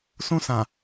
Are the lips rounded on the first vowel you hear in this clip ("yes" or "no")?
yes